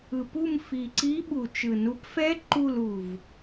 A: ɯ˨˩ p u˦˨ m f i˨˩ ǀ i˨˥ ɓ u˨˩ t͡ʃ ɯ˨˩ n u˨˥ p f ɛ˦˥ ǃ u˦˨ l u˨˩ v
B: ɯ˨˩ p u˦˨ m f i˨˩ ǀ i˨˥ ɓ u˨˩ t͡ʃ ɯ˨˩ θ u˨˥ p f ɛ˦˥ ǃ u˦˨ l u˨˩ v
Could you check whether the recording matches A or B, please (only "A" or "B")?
A